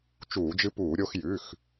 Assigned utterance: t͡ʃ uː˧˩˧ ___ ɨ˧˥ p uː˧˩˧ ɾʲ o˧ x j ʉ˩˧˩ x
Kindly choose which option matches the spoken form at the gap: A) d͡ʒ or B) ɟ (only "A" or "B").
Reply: A